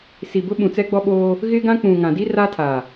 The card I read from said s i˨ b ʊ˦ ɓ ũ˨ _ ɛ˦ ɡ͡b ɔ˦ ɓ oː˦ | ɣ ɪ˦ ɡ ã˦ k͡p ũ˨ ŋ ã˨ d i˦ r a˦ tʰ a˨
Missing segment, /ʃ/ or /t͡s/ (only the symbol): t͡s